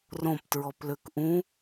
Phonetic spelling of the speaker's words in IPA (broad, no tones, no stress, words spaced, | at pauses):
rõptɹɔpløk ʔũ